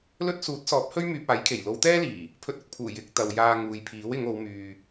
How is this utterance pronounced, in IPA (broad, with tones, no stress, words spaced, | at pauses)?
lɵ˥t̚ suː˨˥t̚sɔː˨˥p̚hɵ˥ɥ myː˧p̚aː˨˥jkʰe˨˩j lo˨˧wt̪ɛː˥liː˨˩ | pʰɵ˧t̚ʊ˨k̚pʰuː˨˩ jɪ˨˥k̚ t̪ɐ˨w jaː˧ŋuː˨jpʰiː˨˥w ɪ˨˧ŋo˨˧wmyː˨